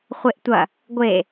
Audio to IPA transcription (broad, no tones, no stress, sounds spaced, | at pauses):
χʷ e ʔ tʷ ɐ | ɡʷ e